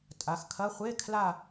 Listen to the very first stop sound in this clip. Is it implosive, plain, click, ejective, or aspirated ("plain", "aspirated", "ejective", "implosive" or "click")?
ejective